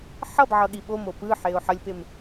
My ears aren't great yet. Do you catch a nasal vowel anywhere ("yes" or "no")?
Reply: no